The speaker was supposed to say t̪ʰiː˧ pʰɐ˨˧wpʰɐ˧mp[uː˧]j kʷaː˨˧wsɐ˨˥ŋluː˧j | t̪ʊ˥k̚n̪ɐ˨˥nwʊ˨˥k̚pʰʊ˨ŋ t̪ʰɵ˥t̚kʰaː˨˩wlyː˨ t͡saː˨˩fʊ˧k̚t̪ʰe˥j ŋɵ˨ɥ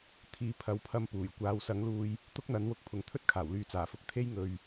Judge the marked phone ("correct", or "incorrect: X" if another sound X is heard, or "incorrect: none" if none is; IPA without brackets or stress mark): incorrect: uː˨˩